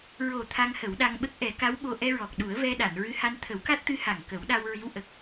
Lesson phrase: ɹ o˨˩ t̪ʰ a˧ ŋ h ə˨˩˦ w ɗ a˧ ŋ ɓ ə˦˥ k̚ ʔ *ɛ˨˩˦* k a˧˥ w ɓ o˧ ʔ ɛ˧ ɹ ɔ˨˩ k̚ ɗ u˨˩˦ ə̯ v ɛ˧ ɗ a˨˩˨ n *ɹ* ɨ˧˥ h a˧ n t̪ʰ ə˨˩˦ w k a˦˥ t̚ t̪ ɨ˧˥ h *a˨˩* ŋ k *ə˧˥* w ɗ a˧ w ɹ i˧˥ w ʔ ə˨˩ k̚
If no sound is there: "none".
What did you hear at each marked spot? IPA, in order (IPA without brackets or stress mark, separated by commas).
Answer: ɛ˨˩˦, ɹ, a˨˩, ə˨˩˦